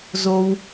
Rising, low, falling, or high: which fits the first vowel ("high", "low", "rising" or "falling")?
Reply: high